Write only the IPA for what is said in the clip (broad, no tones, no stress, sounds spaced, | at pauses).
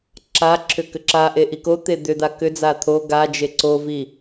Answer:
ǁ a ǁʰ ʏ k ʏ ǁ a ʔ e ʔ i k o t̪ e d̪ ʏ d̪ a k ʏ d͡z a t̪ʰ o ɡ a d͡ʒ e ǀ o v i